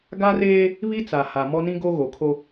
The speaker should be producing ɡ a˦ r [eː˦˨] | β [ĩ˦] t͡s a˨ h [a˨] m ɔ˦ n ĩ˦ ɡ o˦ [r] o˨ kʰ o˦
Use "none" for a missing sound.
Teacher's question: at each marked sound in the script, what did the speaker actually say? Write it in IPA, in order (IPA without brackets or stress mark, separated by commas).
eː˦, i˦, a˨, ɣ